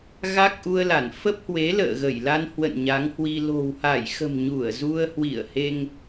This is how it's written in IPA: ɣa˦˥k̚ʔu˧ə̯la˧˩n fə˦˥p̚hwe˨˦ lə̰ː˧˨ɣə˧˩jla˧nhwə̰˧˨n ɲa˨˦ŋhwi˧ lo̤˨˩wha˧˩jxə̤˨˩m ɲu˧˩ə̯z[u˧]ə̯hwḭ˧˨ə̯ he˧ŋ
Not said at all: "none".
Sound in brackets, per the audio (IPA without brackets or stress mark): u˧